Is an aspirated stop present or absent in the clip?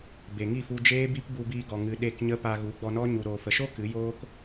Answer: absent